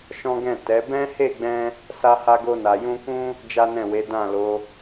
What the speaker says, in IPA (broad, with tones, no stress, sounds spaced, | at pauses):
ʃ ɔ̃˦ ɡ ɛ̃˦˨ t ɛ˨˦ b ɛ̃˦ h e˦˨ ɡ͡b ɛ̃˧ | s a˧ h a˧ ɡ o˧ n a˨ j ũ˧ k ũ˦ | d͡ʒ a˦ n ɛ̃˦˨ w e˨˦ d ã˦˨ l o˨˦